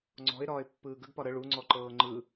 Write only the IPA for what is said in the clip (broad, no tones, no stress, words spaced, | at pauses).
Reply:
ŋ͡ǀɔ̤ɪ̯ ɾɒːɪ̯pːɯːɡəɡpɒ ɾə ɭuŋ͡ǀɔǃɤː ŋ͡ǃɯ